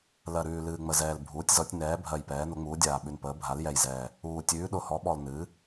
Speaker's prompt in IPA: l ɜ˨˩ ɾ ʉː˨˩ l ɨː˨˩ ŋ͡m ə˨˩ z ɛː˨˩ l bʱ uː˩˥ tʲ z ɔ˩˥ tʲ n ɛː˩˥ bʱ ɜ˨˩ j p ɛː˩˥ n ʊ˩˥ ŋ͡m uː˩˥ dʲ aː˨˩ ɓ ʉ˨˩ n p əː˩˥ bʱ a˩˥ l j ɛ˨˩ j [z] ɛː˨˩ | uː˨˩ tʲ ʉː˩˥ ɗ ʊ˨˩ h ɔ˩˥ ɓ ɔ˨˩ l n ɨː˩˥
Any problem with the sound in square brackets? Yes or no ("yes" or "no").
no